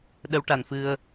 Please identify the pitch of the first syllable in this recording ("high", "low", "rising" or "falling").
rising